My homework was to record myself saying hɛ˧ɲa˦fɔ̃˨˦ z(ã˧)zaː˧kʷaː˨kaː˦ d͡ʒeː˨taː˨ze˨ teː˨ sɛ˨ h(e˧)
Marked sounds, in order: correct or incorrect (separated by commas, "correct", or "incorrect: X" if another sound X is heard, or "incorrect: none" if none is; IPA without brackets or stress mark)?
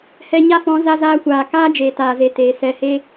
incorrect: a˧, correct